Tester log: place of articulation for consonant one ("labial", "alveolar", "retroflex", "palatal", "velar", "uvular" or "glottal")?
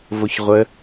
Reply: labial